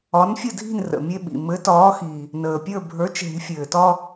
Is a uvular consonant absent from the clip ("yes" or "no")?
yes